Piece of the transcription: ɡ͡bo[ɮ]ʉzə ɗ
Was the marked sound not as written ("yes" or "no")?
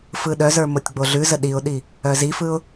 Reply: no